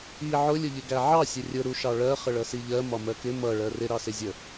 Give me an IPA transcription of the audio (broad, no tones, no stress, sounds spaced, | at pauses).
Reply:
i ʕ ʊ lʲ ʊ ʎ ɪ ɡ æ ʕ ɑ sʲ ə rʲ ʊ ɾ u ʃ ɑ ɭ ɜ χ ə ɭ ʌ s i ʎ ɜ m ɒ m ɜ k ɪ m ʌ ɭ ɜ r ɪ ɾ ɑ s ɪ zʲ ə